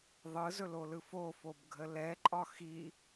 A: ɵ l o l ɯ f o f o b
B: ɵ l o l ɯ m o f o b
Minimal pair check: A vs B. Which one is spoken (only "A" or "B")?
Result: A